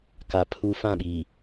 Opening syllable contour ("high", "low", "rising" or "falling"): low